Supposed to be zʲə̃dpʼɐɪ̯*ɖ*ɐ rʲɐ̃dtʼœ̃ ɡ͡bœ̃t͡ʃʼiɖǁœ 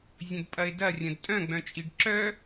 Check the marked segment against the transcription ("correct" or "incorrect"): incorrect